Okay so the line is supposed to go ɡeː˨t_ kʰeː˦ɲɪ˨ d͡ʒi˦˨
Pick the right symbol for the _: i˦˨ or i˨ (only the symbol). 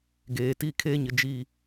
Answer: i˦˨